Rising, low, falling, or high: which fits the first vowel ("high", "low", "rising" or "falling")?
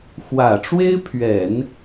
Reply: low